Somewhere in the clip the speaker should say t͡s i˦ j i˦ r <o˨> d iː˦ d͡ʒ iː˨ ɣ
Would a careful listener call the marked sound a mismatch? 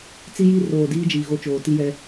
yes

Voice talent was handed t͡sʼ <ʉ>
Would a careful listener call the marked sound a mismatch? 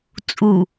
yes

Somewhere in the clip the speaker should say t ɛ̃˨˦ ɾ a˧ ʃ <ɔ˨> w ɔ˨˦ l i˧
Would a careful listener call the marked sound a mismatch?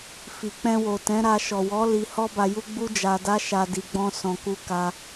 no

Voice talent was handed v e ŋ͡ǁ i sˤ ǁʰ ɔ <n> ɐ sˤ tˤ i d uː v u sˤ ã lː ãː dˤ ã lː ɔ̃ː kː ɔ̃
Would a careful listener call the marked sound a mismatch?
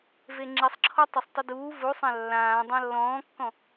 yes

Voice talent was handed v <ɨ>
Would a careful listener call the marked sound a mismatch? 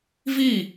yes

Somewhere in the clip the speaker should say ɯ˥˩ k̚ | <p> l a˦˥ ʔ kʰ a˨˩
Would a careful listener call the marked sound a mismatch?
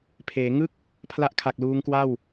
yes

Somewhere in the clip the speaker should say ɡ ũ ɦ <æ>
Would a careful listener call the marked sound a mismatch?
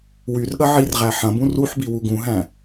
yes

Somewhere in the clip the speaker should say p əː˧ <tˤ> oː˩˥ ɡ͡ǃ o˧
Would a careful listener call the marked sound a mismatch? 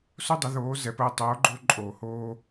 no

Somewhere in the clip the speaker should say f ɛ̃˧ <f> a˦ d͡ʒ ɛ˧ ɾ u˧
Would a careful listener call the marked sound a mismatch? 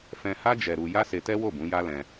yes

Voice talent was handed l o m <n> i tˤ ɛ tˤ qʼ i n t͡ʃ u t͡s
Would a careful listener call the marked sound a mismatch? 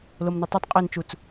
no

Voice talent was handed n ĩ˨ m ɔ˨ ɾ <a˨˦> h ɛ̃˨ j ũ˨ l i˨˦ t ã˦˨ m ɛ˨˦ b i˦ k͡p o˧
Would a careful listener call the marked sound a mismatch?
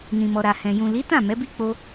yes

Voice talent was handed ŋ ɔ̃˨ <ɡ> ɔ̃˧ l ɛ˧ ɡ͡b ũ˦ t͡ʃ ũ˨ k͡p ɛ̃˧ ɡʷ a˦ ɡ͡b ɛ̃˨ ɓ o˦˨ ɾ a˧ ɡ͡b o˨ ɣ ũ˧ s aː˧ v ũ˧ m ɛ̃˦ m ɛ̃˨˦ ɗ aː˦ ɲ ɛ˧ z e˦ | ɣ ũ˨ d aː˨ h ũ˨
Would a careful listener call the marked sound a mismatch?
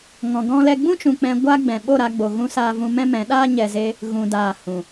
no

